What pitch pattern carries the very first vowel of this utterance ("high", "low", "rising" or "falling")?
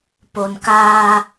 low